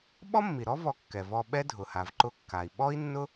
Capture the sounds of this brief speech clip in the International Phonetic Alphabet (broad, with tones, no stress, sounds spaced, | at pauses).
ɓ ɔ˥ mː i˩ ɾ ɔ˥ v ɔ˧ kː ɛ˩ v ɔ˧ ɓ ɛ˥ dʱ ʊ˩ h a˩ v ǃ ʊ˧ kː a˩ i̯ ɓ ɔ˥ i̯ nː ʊ˥